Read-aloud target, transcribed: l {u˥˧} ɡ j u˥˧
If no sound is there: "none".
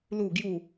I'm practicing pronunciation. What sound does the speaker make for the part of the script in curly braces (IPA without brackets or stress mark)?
u˥˧